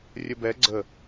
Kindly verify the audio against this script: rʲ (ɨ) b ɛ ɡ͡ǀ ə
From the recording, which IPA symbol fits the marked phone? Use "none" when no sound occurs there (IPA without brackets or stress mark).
ə